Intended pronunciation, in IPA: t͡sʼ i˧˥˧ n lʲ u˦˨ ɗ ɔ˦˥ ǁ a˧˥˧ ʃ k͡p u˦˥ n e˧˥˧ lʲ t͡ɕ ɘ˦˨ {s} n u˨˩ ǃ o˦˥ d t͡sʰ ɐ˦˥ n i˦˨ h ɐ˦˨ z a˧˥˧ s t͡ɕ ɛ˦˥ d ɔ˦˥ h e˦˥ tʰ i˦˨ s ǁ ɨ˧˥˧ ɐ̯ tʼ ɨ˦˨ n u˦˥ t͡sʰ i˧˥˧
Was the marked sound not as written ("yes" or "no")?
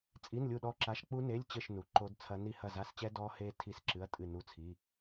yes